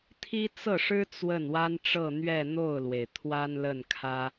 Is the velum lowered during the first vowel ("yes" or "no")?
no